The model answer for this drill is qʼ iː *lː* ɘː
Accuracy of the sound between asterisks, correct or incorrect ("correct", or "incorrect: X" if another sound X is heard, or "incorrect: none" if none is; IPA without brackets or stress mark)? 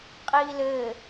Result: incorrect: l